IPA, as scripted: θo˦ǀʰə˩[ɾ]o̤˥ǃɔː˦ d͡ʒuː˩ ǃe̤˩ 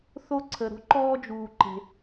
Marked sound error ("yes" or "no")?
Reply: no